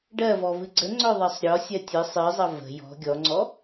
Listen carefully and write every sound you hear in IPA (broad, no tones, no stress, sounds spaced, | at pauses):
ɖ ɜ v ɔ v ɨ ɡ͡ǀ ə ŋ͡ǀ œ ðˤ ɜ sˤ ɾʲ ɔ sʲ ɜ tʲ ɨ sˤ ɨ zˤ ʌ v ə̤ j ɔ̤ ɡʲ ɔ ŋ͡ǀ ɔ